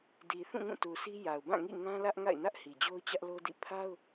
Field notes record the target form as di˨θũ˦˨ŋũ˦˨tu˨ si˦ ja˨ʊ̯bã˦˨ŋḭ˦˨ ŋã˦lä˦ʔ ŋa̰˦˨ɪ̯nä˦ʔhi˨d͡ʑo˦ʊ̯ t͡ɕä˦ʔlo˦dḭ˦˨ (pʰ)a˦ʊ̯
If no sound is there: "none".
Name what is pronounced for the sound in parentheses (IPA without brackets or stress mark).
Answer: pʰ